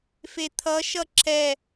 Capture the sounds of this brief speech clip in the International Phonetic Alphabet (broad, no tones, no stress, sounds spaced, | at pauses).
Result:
f e t̪ʰ ʌ ʃ ʌ ǁ ɛ